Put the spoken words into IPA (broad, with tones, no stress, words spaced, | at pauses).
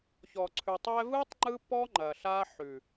çɔ˨ǀʰʉ˨ tˤɛ˧vɯ˦tˤ ŋ͡ǃɯ˦pɔ˦ ŋ͡ǃɐ˨ɬa˦ ħʉ˨